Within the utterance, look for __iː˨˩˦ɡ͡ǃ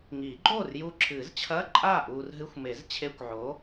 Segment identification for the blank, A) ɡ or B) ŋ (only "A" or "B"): B